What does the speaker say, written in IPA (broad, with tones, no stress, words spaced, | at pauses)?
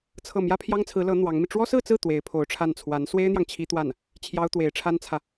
t͡sʰɤ˥˩ mjä˥pʰjɑ˥ŋt͡sʰɹ̩˧˥lɤ˧˥ n̪wɑ˧˥ŋmi˧ ʈ͡ʂwɔ˥sɹ̩˥˧t͡sɹ̩˥˩ t̪we˧˥ɪ̯pʰo˧˥ʊ̯ʈ͡ʂʰa˥˩n t͡sʰwa˧˥n swe˥ɪ̯n̪jɑ˨ŋ t͡ɕʰi˥t̪wa˥˩n | t͡ɕʰjɑ˥ʊ̯t̪we˧˥ɪ̯ʈ͡ʂʰa˥nt͡sʰä˨